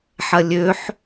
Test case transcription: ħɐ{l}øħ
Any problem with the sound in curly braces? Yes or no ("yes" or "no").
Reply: yes